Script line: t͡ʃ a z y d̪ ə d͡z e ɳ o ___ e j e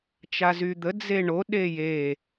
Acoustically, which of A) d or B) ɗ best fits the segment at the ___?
B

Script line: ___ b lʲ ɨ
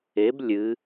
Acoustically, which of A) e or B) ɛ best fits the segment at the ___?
A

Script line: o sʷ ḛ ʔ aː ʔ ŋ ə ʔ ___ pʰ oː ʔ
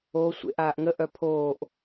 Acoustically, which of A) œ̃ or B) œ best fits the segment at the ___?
B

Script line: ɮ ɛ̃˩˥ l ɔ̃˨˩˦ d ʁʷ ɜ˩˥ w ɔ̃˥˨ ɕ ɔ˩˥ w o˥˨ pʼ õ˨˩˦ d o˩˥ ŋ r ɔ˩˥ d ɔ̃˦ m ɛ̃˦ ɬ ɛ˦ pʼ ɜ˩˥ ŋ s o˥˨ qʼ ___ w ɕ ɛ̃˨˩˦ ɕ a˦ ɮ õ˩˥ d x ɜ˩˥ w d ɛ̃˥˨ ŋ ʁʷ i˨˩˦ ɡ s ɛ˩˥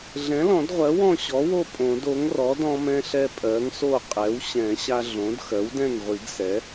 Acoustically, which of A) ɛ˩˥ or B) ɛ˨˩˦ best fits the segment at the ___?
A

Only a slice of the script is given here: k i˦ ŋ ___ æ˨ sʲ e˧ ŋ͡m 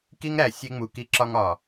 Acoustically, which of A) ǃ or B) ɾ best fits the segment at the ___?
B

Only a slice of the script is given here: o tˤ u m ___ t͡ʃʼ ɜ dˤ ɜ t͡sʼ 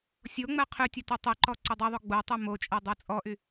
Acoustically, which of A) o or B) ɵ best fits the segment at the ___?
A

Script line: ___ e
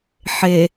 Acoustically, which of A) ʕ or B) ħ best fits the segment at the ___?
B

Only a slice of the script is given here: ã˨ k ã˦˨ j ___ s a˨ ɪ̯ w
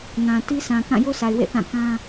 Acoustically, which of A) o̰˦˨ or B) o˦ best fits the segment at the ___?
B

